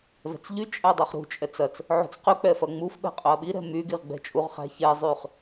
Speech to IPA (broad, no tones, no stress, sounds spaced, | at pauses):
v ɛ̤ t͡s ʎ y t͡ʃʼ æ dˤ u χ ɾ ṳ t͡ʃʼ ɛ t͡s ɐ t͡s | ʕ ṳ t͡s q y k͡p ɛ f ɐ ŋ͡m u f ɓ ɛ̤ qʼ ɵ ɐ̯ ɓ i ɾ ɛ̤ m y ɡ i ʁ ɡ͡b ɛ̤ t͡ʃʼ u ʁ χ æ̤ ç ɛ zˤ y χ